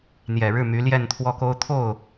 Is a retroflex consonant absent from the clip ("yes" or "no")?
no